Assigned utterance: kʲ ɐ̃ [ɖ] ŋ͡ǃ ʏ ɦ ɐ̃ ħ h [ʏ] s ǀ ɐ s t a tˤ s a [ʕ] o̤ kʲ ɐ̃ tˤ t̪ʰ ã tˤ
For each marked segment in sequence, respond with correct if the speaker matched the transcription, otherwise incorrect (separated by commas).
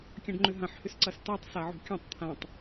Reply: correct, correct, correct